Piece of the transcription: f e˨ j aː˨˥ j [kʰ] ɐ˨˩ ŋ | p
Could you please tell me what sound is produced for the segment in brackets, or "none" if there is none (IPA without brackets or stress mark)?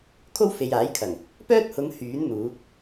kʰ